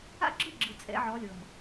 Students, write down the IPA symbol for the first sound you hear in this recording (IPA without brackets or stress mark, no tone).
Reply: a̰